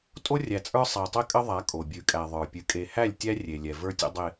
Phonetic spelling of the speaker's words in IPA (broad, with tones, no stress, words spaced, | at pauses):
tʼo˦rʲæ˨t͡sʼə˞˦ sˤæ˨tˤɛ˦kʼə˦ðˤa˨˦ kʼo˨ bʲʉ˨kʼæ˨ðˤə˞˨ pʲʉ˨ kʼe˨hæ˦˨lʲtʲæ˦ rʲe˨lʲɛ˨və˞˦tʲə̰˦ dˤe˨